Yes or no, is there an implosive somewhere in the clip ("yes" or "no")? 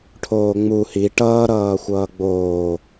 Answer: no